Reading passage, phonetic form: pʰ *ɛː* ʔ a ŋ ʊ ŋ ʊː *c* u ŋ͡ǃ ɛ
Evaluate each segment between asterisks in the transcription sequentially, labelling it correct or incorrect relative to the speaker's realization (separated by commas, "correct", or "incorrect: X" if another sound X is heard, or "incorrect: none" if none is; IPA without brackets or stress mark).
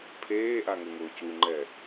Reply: incorrect: eː, correct